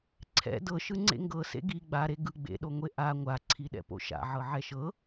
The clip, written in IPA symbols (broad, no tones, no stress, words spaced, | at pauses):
ǀʰɛ̰ dɤʃɯ ŋ͡ǀḛŋɡɤ sḛɡi ɡ͡baɾe ɡɯ ɡ͡bḛɗoŋʷe ʔa ŋʷaǀʰiɗɛ̰ po̰ʃa̰ ʕɤʕɛʃɤ